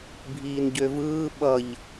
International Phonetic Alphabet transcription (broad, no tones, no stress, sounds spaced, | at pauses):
bʱ iː n ɟ ø v ɯː ɓ ʌ ʎ